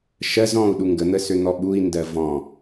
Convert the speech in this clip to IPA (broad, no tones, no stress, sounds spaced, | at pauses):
ʃ ɜ z ɔ̃ u̯ ɗ u ŋ ɡ ə n̪ ə s ø n̪ ɔ ɓ u i̯ n d ɜ v ɔ̃